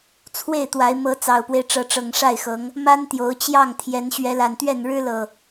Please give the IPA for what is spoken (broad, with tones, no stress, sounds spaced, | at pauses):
t͡sʰ w e˥˨ ɪ̯ t̪ w a˨˦ ɪ̯ m ɤ˨˦ t͡s ɑ˨˩ ʊ̯ p w e˦ ɪ̯ ʈ͡ʂ ɤ˨˦ ʈ͡ʂ ɤ˨˩ ŋ ʂ a˥˨ ɪ̯ x ɤ˨˦ ŋ | m a˦ n t̪ j o˨˦ ʊ̯ t͡ɕ j ɑ˥˨ ŋ t̪ʰ j ɛ˨˦ n ɕ ɥ ɛ˨˦ l a˨˩ n t̪ ɥ ɛ˥˨ n ɻ ɻ̩˦ l ɤ˨˩